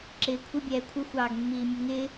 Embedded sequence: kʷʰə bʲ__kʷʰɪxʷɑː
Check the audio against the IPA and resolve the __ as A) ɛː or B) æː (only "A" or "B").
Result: A